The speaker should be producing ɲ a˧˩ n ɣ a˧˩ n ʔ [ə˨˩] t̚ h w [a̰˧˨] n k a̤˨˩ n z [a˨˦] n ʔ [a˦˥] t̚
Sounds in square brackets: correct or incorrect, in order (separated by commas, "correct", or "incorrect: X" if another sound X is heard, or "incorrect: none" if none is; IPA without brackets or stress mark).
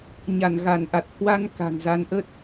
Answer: incorrect: a˨˩, incorrect: a˧, correct, incorrect: ə˦˥